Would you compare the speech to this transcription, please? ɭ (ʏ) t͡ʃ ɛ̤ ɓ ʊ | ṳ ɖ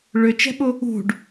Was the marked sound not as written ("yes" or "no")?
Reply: no